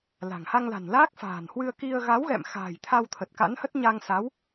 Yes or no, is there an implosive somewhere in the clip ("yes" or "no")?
no